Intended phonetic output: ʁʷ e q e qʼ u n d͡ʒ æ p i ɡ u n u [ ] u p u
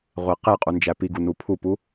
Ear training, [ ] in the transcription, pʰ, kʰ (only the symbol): pʰ